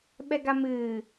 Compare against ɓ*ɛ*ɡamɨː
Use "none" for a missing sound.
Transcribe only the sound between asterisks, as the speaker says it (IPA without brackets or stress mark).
ɛ